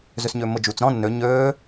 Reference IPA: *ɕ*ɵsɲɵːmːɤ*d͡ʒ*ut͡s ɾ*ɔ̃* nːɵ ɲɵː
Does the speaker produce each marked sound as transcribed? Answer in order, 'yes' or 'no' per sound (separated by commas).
no, yes, yes